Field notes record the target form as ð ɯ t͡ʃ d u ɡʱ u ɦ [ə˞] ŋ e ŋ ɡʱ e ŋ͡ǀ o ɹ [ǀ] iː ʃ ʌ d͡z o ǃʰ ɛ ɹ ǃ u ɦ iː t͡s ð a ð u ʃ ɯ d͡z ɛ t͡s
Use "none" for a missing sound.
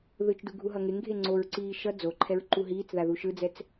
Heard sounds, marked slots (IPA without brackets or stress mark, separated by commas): ʌ, ǀ